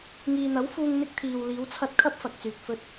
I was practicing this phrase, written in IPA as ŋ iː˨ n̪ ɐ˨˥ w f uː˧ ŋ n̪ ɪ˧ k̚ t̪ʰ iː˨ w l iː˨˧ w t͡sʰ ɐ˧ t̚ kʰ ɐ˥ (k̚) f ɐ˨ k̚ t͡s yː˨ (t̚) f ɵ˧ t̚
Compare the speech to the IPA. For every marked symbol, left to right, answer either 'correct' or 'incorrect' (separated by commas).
incorrect, incorrect